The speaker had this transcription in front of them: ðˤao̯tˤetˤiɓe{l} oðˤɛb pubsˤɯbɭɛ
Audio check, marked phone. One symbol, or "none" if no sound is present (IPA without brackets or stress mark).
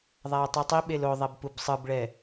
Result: l